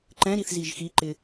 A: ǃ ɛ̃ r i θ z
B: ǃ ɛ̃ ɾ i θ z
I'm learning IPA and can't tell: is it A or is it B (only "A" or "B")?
B